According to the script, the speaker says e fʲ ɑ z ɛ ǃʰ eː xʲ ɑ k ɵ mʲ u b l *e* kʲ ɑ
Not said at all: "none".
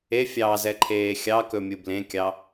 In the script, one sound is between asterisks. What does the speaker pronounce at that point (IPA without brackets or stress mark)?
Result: ẽ